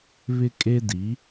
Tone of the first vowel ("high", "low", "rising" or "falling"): high